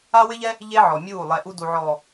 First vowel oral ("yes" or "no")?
yes